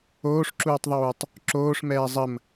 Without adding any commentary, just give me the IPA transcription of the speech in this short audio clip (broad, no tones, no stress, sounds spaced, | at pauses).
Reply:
oː ʂ ǁ uː tˤ ðˤ uː tˤ | ǁ oː ʂ m ɛː zˤ ə m